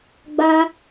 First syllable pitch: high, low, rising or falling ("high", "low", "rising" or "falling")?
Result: high